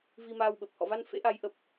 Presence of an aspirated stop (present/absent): absent